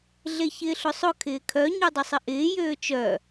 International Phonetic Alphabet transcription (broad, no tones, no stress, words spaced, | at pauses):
ɮeçɪːɬʊsˤʊ kʰɪːkʰœ ɲudˤʊsˤɪʔɪː jøːt͡ʃœ